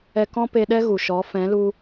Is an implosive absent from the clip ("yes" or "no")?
no